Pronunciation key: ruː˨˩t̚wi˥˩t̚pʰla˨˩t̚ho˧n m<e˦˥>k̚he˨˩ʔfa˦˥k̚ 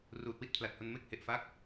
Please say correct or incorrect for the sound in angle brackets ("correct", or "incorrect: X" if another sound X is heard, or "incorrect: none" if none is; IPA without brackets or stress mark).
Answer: correct